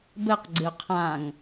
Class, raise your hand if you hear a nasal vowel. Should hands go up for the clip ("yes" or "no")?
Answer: yes